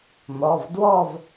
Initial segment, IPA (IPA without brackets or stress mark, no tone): n̪